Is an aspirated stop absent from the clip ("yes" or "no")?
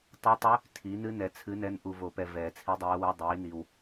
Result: no